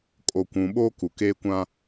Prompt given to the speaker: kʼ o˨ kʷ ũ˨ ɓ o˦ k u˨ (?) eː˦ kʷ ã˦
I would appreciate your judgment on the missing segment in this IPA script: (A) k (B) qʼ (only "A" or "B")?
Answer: A